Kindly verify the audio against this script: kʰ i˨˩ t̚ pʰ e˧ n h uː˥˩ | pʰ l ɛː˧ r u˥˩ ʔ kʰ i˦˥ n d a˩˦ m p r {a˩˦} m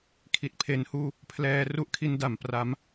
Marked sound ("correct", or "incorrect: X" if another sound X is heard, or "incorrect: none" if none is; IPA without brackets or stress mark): correct